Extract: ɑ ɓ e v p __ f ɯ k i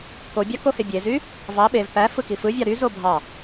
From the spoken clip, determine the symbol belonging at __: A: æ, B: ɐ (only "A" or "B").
A